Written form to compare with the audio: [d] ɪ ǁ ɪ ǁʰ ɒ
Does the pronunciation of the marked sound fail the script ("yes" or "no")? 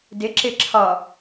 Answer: no